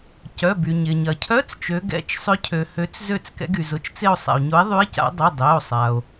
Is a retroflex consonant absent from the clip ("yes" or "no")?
yes